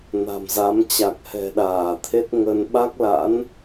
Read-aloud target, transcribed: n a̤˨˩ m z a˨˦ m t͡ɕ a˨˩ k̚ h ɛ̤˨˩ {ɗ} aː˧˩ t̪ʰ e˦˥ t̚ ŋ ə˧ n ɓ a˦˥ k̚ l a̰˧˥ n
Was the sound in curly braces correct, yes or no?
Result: yes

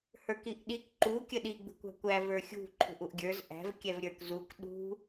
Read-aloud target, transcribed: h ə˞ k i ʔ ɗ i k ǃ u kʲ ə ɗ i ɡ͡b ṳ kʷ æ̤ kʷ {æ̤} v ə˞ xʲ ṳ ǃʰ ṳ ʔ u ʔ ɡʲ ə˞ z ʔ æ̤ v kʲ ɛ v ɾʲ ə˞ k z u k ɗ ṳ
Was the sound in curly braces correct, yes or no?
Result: no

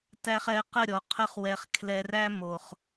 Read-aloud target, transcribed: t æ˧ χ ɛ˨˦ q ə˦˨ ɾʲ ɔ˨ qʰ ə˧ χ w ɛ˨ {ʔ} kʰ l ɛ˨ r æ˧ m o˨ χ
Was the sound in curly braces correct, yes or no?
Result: no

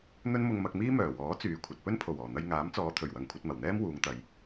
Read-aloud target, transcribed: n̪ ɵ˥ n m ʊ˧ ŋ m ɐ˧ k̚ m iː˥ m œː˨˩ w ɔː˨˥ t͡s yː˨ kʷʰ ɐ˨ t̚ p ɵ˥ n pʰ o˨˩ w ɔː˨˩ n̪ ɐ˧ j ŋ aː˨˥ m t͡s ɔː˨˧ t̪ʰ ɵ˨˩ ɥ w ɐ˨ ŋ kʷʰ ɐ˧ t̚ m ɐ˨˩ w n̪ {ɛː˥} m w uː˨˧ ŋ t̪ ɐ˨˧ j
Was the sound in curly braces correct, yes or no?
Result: yes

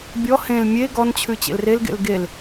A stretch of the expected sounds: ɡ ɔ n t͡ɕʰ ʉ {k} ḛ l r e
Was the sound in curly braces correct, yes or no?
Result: no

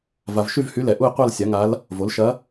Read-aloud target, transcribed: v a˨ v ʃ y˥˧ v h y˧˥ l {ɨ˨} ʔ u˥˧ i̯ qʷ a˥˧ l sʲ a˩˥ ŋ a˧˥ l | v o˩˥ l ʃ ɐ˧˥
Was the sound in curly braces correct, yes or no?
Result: no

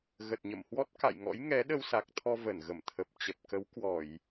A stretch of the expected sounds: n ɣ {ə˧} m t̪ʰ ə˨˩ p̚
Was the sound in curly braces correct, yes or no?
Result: no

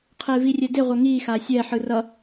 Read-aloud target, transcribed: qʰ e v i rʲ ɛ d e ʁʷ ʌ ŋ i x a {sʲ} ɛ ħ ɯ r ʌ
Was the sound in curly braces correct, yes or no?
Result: yes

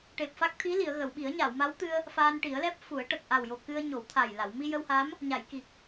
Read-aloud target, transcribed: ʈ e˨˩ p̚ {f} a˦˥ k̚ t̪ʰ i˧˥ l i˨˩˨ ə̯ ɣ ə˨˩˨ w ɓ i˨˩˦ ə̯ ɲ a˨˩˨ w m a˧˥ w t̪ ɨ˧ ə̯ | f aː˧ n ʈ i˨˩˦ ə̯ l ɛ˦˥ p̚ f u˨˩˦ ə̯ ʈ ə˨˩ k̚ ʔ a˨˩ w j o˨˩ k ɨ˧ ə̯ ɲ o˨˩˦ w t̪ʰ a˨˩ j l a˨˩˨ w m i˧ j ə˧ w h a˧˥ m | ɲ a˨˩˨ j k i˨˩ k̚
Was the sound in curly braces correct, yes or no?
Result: yes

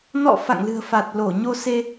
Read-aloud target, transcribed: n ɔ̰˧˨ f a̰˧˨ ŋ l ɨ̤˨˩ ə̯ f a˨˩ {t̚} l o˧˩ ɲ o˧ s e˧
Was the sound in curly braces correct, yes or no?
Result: yes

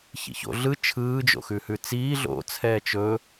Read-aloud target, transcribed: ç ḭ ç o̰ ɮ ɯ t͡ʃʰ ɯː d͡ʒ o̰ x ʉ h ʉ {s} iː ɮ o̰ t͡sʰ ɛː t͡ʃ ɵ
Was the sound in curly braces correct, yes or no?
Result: no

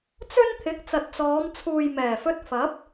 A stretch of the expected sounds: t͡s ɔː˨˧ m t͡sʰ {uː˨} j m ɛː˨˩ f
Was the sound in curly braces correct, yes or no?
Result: yes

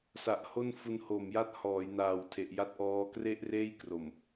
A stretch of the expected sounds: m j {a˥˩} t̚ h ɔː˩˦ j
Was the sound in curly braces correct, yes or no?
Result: yes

